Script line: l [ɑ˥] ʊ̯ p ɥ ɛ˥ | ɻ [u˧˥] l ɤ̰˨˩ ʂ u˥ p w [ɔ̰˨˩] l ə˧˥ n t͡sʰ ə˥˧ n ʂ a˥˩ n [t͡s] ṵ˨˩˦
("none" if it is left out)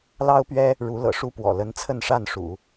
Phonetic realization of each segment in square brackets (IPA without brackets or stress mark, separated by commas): ɑ˥, u˧˥, ɔ̰˨˩, ʂ